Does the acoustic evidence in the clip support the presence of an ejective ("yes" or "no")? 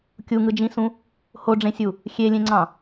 no